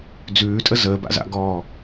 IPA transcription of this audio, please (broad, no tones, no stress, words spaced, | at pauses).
d͡zʉːtʼə zəːba̰za̰ɡɔː